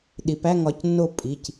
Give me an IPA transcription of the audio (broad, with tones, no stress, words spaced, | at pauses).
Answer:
ɗi˩˧pæ˥˨ŋ ɒ˩˧˩cnːo˥˨ pʼi˩˧˩c